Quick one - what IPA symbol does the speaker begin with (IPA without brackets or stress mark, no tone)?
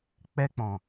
k͡p